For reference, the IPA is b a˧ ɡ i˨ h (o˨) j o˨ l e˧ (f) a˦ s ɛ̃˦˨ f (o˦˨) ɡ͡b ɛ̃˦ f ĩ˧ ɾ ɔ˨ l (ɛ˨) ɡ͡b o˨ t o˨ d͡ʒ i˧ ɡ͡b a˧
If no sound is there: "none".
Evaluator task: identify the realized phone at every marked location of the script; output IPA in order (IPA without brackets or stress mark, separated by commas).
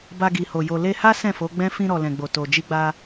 o˨, h, o˨˦, ɛ̃˨